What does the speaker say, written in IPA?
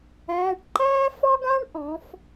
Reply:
æː˩˧˩ ʈ ǃ æː˥ f ɒ˥ ɡ ã˥ ɳ ʔ ɔ̃˩˧ f

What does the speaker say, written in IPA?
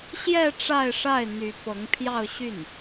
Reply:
ɕ j ɛ˥˧ ʈ͡ʂ a˥˧ ɪ̯ ʂ a˥˩ ɪ̯ n̪ y˧˥ p ɤ˧˥ ŋ pʰ j ɑ˥˧ ʊ̯ ɕ y˥˩ n

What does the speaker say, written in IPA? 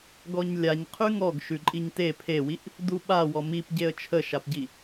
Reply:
ɡ ɔ ɲ lʲ a ɲ qʰ ʉ ŋ ɔ ɡ ʃ ʉ ǃʼ i ɲ t e pʰ e w i ʔ | d u ɓ a w ɔ m i p ɟ e ə̯ t͡ʃʰ ə ʃ a p ɟ i

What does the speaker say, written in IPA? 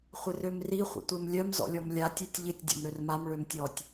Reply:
χʷ ɪ r ø m r i χʷ ə̰ tʷ e m lʲ œ m z ɔ̰ lʲ ɔ m lʲ a tʲ e tʲ ʎ ɪ tʲ dʲ ɔ̰ m ɾ ø r m a m ɭ ø m tʲ ɔ tʲ

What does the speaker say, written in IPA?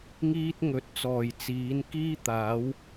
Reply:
ŋ iː˥ t̚ ŋ ɵ˨˥ t̚ t͡s ɔː˨˩ j t͡s iː˨˥ n k iː˥ t̪ aː˨˥ w

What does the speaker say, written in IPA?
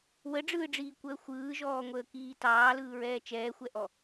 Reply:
w ə ɖ͡ʐ ɯː ɖ͡ʐ iː kʷ əː xʷ ɯː ʒ ɔː ŋʷ əː k iː t ɑː l ɯː ɹ ɛː t͡ʃ ɛː xʷ ɛ ʔ ɔ

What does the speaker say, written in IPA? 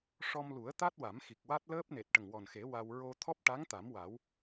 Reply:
ʂ ɔ˧ m l u˨˩˦ ə̯ t̪ a˦˥ t̚ w a˨˩˦ m x i˨˩ k̚ w a˦˥ t̚ l əː˦˥ p̚ n e˨˩ t̚ ʈ ə˨˩ ŋ w ɔ˨˩ n x e˨˩˦ w a˧ w ɹ o˧ t̪ʰ ɔ˦˥ p̚ ʈ a˧˥ ŋ t̪ a˨˩˦ m w a˨˩˦ w

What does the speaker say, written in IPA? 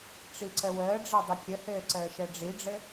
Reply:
ʈ͡ʂ i ǀ ə w əː ɖ͡ʐ ɛ dˤ ɘ kʲ ə h ɘː ǀ əː ʃ ɛ ɖ͡ʐ i ɖ͡ʐ ɘ

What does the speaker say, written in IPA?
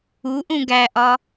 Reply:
u ʔ ũ ɡ æ ʔ ɒ

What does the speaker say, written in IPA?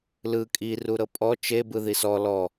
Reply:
l ɯ kʼ i r u ɾ ɤ pʼ ɔ t͡ʃ e b ɯ ð i s ɔ l ɔ

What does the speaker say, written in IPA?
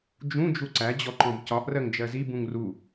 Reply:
d͡ʒ ũ d͡ʒ u ǀ æ d͡ʑ ɔ ǃ ɔ̃ b c ɒ ʔ r ɜ ŋ d͡ʒ ɜ z i b ũ ŋ r u

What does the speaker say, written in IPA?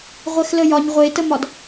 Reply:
ʁʷ ɛ x l ə j ɒ ɲ ʁʷ e t ə m ɒ d

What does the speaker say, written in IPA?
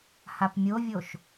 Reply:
h a p mʲ o vʲ o ʃ

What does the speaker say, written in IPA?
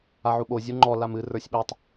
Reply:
a ʕ u ɓ o zʲ u ŋ͡ǃ ɔ l a m ɨ r ə˞ sʲ ɓ e tˤ

